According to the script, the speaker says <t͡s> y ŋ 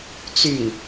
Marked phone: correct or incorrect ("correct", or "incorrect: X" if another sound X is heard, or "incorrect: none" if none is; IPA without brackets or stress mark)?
correct